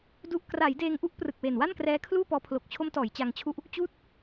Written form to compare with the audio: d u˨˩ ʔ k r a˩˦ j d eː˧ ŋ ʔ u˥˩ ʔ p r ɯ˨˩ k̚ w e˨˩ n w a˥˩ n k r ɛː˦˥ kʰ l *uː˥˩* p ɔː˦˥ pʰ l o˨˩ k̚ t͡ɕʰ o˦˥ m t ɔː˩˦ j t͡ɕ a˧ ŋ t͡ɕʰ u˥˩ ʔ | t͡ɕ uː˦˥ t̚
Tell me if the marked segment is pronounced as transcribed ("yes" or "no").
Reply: yes